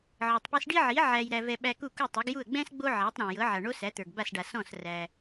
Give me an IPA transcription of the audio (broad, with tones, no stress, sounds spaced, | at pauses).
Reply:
ʕ ɤ˩ tˤ p i˧ s ɖ i˥ ʕ i˩˥ ʕ æ˧ j ɾ æ˧ v ɛ˧ ɓ æ˧ k u˥˩ k u˥˩ tˤ ɤ˩˥ ɡ j u˥˩ ə̯ ɡ͡b ɛ̃˥ s ɡ͡b o˥ ʕ æ˩˥ tˤ ɾ ɔ̃˩ j ɤ˩˥ ʕ a˩ ɳ o˥ s æ˩˥ t̪ ə˞˩ ɡ b a˥˩ s ɖ a˩ s ɔ̃˥˩ s r æ˩